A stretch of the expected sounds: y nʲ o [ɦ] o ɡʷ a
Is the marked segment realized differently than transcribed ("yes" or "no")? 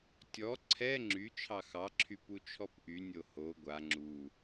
yes